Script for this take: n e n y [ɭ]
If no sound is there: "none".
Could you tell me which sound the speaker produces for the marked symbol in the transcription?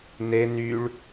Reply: ɭ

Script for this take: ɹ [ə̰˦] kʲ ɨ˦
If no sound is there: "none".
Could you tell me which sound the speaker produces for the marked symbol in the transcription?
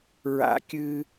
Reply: a̰˦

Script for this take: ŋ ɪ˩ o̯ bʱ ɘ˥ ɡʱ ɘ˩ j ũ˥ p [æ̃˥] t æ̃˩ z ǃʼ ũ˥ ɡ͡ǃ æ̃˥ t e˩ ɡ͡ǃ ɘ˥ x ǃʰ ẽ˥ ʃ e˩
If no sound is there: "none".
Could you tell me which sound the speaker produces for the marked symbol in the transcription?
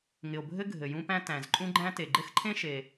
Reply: æ̃˥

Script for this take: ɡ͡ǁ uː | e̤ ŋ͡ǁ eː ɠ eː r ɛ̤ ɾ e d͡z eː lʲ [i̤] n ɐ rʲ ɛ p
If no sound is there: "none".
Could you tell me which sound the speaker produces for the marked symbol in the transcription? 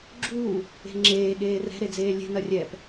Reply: e̤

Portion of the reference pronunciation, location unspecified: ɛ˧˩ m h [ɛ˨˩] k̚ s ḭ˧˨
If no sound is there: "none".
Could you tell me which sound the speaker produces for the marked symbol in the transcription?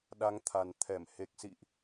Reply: e˨˩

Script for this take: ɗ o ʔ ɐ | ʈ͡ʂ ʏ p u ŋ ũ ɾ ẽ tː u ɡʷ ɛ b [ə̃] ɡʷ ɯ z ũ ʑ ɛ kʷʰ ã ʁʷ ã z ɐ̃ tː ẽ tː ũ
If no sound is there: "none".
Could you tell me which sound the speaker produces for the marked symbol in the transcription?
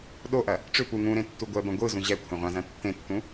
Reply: ɐ̃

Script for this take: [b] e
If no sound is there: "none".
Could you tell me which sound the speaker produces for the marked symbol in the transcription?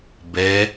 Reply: b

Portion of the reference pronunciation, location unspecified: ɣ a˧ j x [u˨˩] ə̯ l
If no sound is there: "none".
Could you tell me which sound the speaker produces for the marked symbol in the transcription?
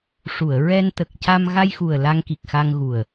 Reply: u˨˩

